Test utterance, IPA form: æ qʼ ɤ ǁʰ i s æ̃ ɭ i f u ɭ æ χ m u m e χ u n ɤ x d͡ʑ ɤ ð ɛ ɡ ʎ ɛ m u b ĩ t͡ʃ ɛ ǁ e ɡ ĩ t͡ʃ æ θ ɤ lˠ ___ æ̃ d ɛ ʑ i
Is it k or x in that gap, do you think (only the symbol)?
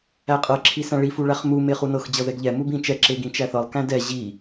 k